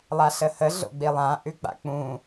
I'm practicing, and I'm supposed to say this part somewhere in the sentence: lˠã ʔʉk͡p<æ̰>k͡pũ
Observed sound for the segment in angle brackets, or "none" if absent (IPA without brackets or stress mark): a̰